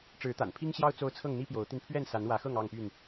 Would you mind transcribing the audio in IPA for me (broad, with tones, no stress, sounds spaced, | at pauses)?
ʈ͡ʂ ɻ̩˨˦ t̪ a̰˨˩ n pʰ i˦ ŋ ɕ j ɑ˦ ʊ̯ t͡s o˦ ʊ̯ t͡sʰ ɤ˥˨ ŋ n̪ i˦ p j o˨˦ ʊ̯ t̪ i˧ n pʰ ɥ ɛ˥˨ n s a˨˦ n w ä˨˦ x ɤ˥˨ ŋ ɑ˥˨ ŋ p y˥˨ n